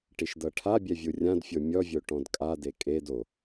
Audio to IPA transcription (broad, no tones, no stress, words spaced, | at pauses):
ʈiʃdɤʈʰabʲɛ vʲurʲãdfʲo mʲɔvʲo ʈɔ̃dkʼade kʼed o